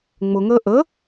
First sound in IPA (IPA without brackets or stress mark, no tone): ŋ͡m